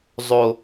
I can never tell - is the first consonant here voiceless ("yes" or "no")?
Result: no